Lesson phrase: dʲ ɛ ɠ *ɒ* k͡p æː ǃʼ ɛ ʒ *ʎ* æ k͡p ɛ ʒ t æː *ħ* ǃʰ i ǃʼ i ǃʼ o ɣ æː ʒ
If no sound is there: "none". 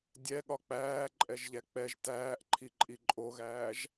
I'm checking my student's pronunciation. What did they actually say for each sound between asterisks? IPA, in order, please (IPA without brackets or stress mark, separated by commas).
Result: ɒ, ʎ, ʔ